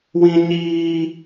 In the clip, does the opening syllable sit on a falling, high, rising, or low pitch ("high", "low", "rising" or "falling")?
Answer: high